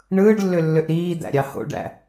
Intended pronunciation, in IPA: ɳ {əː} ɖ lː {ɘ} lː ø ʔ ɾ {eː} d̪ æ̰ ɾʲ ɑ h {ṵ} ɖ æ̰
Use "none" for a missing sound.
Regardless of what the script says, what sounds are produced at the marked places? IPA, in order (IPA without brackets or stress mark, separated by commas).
ɯː, ø, iː, o̰